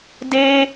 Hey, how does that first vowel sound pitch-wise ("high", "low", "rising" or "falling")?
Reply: high